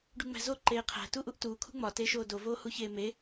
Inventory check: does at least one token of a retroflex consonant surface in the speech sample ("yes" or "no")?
yes